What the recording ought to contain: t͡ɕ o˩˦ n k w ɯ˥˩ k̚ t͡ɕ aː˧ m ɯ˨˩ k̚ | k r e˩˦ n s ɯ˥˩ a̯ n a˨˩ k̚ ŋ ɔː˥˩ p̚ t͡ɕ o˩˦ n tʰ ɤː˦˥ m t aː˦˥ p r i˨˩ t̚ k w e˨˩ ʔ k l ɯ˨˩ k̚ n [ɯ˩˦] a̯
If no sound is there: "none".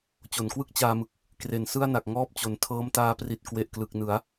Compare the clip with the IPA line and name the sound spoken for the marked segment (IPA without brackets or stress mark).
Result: ɯ˩˦